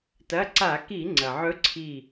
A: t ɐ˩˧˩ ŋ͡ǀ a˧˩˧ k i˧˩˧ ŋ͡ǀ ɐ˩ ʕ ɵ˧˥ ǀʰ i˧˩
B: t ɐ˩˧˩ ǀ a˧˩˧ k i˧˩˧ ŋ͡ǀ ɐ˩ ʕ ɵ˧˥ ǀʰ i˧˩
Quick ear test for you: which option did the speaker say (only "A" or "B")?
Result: B